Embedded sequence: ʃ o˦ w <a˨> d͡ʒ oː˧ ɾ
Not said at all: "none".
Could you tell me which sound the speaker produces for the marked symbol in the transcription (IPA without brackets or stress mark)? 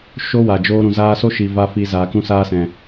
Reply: a˨